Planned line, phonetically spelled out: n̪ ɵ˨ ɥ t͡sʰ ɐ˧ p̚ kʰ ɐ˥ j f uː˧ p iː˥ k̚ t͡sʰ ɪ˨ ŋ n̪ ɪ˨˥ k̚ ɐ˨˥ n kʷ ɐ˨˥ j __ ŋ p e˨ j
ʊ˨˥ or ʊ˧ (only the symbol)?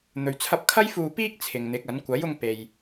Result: ʊ˧